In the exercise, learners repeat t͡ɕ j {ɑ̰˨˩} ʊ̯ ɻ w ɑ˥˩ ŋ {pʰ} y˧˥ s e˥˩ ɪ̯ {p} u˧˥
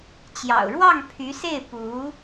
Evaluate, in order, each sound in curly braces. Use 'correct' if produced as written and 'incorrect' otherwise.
correct, correct, correct

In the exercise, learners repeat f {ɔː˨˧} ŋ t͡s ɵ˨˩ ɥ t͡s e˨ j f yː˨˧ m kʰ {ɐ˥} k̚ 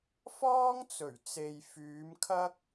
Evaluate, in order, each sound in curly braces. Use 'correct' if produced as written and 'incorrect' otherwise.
incorrect: ɔː˥, correct

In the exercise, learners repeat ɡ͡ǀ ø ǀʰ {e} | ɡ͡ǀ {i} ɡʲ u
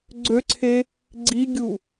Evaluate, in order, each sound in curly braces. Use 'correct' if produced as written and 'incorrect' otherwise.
correct, correct

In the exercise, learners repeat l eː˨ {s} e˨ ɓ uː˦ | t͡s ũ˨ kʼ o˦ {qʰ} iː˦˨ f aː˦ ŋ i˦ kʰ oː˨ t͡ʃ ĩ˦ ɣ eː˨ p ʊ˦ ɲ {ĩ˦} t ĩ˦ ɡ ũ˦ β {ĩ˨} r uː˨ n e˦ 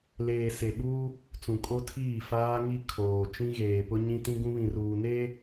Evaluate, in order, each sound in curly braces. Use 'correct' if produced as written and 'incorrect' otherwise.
correct, incorrect: tʰ, correct, correct

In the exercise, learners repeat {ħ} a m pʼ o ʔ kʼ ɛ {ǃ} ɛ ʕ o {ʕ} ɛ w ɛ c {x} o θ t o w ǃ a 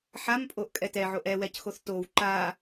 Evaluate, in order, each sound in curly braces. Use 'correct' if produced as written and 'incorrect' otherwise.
correct, incorrect: t, incorrect: ʔ, correct

